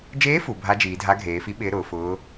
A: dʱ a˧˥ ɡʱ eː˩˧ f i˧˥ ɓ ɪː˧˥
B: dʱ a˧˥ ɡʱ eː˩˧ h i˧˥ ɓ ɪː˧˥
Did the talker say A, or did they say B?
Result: A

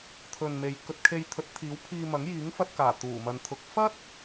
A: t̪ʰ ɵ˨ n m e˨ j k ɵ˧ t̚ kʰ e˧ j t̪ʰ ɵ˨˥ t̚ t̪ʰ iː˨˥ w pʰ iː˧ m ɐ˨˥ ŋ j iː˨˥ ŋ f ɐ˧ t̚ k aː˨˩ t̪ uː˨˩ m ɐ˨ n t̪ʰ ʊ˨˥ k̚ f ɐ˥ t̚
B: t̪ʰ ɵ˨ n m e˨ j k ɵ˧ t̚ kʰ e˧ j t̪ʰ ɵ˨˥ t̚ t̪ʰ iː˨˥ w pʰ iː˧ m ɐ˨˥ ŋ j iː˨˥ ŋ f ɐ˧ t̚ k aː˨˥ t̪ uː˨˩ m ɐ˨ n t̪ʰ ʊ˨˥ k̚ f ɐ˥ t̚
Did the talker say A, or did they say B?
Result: A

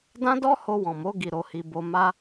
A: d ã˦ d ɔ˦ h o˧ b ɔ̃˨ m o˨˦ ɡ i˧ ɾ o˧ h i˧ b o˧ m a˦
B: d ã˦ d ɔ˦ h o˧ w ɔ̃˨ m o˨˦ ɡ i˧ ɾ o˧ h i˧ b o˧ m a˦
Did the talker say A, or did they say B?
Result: B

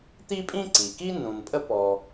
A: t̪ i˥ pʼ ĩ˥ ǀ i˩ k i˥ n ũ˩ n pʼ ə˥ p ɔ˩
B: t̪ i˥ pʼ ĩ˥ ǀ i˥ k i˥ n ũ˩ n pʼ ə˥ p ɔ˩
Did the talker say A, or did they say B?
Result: A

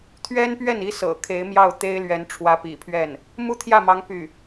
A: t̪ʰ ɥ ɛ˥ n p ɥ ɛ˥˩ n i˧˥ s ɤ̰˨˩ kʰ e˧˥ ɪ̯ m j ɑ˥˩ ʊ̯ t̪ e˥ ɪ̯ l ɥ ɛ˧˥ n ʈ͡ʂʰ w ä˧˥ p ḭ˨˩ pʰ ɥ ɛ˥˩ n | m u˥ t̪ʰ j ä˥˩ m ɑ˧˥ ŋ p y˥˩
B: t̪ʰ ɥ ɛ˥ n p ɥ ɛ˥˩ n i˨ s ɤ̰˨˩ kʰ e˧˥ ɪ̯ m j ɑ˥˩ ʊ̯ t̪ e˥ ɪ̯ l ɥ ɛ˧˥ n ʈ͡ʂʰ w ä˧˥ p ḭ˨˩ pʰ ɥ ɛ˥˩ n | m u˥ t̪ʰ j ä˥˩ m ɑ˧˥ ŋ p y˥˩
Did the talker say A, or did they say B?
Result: A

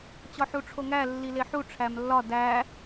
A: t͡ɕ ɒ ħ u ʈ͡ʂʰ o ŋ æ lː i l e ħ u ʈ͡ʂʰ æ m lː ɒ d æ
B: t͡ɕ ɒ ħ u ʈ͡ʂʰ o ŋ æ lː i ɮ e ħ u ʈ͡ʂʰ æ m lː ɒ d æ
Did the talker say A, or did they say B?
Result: A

